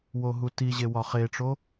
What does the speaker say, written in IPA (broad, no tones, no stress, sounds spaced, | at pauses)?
w o ɦ u t i ʑ e w ɒ χ e ʈ͡ʂ o